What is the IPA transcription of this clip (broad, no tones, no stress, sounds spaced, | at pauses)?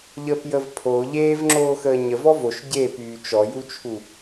ʎ əː p j ə v pʰ o ʎ eː v ŋ͡ǁ oː x əː ɲ ə v ɔ v o ʃ ɟ e p yː t͡ʃ ɔ j u t͡ʃʰ u